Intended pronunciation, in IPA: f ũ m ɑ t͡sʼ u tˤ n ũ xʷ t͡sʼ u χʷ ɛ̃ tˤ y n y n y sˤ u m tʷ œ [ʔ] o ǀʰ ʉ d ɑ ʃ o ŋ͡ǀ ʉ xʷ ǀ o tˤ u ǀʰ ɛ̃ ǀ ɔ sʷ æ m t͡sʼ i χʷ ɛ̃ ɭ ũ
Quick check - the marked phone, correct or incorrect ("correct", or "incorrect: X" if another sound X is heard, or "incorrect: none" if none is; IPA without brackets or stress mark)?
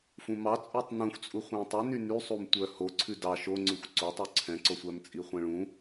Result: incorrect: h